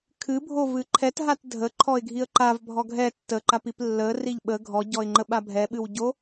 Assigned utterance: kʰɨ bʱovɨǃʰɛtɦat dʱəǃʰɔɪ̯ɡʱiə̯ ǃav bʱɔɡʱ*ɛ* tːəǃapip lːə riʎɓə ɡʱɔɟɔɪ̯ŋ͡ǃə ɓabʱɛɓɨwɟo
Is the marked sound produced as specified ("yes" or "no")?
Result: yes